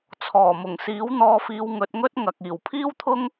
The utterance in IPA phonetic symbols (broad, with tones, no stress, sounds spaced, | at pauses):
t͡sʰ ɔː˨˩ m ʊ˨˩ ŋ s iː˨˥ w n̪ ɔː˧ f iː˧ w ŋ ɵ˧ t̚ ŋ ɵ˥ t̚ ŋ ɐ˨ k̚ iː˨˩ w pʰ iː˥ w t̪ʰ ʊ˥ ŋ